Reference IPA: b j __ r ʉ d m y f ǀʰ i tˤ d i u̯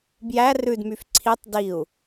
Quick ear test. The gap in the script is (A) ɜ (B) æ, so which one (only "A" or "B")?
B